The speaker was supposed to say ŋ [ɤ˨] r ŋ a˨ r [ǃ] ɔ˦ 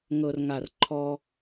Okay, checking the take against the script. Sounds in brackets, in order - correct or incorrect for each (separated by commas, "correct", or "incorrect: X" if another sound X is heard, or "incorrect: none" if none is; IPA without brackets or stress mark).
correct, incorrect: ǃʰ